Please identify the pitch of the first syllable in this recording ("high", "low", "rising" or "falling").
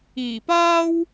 low